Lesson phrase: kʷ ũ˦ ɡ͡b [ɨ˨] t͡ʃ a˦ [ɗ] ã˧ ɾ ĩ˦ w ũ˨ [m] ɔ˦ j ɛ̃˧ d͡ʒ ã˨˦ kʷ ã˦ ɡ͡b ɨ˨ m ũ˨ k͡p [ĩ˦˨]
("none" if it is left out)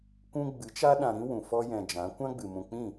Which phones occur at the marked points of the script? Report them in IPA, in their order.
ɨ˨˦, ɗ, f, ĩ˦˨

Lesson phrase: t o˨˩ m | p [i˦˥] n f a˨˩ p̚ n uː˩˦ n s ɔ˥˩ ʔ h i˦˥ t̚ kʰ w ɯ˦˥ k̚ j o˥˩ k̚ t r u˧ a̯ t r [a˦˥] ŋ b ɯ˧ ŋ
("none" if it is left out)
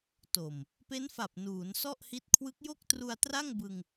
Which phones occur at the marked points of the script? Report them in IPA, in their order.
e˦˥, a˥˩

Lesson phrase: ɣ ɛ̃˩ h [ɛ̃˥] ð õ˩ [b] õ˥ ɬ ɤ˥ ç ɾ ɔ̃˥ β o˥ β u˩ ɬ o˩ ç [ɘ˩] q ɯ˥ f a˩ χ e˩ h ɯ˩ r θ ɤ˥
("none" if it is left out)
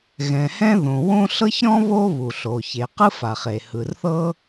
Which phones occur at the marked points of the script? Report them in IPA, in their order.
ɛ̃˥, w, e˩

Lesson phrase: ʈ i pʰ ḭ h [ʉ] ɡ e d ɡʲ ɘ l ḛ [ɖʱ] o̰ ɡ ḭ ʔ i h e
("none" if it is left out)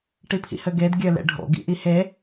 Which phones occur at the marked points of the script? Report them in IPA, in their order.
ɘ, ɖʱ

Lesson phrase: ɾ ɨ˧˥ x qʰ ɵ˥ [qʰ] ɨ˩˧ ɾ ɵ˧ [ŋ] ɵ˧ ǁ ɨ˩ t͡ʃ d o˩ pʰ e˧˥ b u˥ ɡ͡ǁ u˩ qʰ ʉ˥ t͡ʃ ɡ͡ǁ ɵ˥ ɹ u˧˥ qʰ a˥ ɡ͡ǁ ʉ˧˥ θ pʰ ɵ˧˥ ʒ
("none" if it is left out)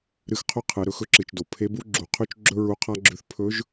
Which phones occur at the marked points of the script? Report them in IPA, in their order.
qʰ, x

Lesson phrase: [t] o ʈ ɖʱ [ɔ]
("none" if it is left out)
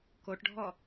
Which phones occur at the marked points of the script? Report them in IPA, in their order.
k, ɔ

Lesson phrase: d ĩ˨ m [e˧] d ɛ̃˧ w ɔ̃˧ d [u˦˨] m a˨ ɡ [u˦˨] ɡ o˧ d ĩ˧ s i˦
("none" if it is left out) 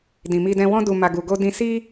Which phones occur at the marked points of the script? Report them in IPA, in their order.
i˧, u˨, u˨

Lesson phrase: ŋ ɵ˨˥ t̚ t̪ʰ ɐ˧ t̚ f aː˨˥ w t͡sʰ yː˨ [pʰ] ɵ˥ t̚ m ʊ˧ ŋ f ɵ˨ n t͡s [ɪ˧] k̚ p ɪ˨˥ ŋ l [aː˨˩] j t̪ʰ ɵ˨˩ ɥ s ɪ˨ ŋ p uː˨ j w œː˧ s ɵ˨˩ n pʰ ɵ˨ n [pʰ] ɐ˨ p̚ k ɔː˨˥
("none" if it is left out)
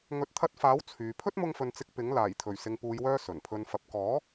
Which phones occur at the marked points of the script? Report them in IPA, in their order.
pʰ, ɪ˧, aː˨˩, f

